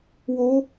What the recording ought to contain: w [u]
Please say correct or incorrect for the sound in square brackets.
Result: incorrect